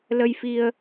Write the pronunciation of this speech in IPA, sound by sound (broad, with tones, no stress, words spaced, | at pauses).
lə˧jfi˧ə̯